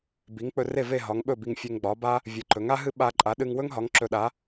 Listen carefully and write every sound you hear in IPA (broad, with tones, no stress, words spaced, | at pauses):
bi˩˥ŋk͡pɵ˧re˥˩ve˥˩ ɦɒ˩˥ŋɓɵ˥˩bi˧ŋ fʲe˧ŋɡ͡bɒ˩˥ba˥ | vʲɨ˩˥ǃɵ˩˥ŋa˥ɦɨ˥ ɓa˧ ǃʼa˩˥ɗɨ˧ŋwɵ˥ŋɦɒ˩˥ŋ ǁɵ˧ɗa˩˥